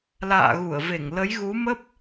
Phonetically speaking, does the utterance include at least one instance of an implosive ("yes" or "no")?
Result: no